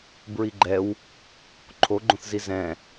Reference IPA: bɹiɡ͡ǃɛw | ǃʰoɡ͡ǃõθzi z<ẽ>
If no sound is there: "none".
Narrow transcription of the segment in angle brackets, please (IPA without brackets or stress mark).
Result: ɛ̃